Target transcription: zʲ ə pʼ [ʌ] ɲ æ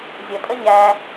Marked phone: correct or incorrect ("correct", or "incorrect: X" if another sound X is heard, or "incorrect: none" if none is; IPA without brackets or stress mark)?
incorrect: ə